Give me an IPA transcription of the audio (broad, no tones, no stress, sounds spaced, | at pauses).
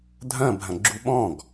dʱ ɐ̃ bʱ ɐ̃ ɡ͡ǁ u ɓ ɔ̃ ɡ